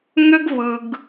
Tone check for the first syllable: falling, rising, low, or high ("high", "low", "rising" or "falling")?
high